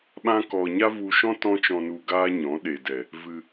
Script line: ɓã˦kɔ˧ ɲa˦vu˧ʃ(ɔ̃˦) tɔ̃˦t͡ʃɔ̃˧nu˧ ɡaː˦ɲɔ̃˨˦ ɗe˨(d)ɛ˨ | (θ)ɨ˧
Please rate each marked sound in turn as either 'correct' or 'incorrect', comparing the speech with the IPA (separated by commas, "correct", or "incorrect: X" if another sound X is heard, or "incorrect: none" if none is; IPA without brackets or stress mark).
correct, correct, incorrect: v